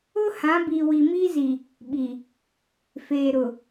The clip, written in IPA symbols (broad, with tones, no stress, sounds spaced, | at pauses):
ʊ˦ h ã˨˦ b i˨ w i˨ m iː˦ z i˨ | ɓ i˨ | f eː˨ ɾ ʊ˨